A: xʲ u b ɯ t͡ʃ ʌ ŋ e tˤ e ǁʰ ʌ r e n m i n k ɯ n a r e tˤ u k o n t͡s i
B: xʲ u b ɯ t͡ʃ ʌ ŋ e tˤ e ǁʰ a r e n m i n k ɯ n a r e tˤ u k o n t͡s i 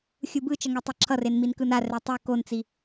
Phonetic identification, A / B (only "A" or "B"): A